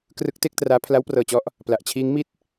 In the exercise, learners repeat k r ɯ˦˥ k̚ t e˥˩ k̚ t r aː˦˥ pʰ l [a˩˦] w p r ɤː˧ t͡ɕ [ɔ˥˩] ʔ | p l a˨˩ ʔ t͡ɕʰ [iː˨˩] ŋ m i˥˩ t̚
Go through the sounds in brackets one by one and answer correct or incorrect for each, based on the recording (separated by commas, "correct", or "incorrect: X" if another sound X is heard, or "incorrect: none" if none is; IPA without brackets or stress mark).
incorrect: a˦˥, incorrect: ɔ˦˥, incorrect: iː˦˥